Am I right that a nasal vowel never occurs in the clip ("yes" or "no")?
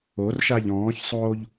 no